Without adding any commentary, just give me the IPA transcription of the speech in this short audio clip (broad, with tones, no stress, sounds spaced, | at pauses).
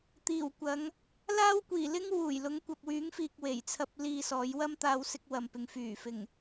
t̪ iː˨˩ w kʷ ɐ˨˧ ŋ | l aː˥ w kʷ iː˨˩ l ɪ˥ ŋ w uː˨˩ j l ʊ˨˥ ŋ kʷ ɐ˨ p̚ w yː˨˥ ŋ f iː˧ k̚ w e˨˩ j t͡sʰ ɐ˧ p̚ l iː˧ s ɔː˨˧ j w ɐ˥ m t̪ aː˧ w s ɪ˧ k̚ w ɐ˨ m p ɪ˨ ŋ f yː˨˩ f ɪ˨˩ ŋ